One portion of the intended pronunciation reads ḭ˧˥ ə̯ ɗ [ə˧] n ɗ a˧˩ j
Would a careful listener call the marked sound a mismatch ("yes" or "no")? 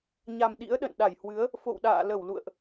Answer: yes